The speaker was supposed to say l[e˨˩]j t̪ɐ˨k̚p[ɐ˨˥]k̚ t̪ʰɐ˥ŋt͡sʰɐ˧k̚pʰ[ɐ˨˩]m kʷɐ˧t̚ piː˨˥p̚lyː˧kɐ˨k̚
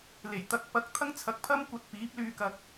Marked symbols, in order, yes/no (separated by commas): yes, yes, no